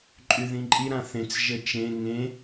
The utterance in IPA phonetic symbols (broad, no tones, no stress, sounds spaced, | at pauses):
ǃʼ y ð ĩ ǃʼ i ɾ ã θ ẽ t͡s ʒ ɘ t͡ʃ ẽ ŋ ẽ